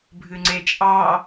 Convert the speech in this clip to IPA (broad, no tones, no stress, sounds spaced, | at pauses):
bʱ ɨ ŋ͡ǀ e t͡ʃʼ ɑ